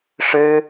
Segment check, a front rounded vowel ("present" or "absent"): absent